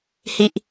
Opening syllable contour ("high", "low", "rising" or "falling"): high